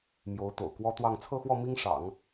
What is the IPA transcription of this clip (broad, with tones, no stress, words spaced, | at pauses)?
mjo˧˥ʊ̯t̪o̰˨˩ʊ̯kwɔ˥t̪wɑ˥˧ŋ t͡sʰɤ˥˧xwɔ˥˩ mi˥ŋʂɑ̰˨˩˦ŋ